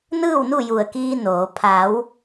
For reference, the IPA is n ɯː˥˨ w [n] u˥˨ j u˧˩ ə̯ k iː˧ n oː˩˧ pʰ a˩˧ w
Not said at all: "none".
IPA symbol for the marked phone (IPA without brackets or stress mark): n